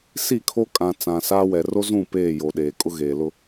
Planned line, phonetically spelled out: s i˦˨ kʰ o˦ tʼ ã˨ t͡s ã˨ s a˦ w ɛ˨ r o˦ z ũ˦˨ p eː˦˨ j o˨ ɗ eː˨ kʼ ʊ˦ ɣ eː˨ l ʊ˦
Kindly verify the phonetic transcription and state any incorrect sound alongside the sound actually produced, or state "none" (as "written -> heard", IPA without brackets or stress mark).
tʼ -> kʼ